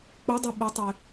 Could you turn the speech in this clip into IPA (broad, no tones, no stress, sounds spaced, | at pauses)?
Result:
k͡p ɵ dˤ i ɓ u tˤ e